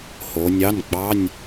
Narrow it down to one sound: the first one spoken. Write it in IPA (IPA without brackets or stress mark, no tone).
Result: h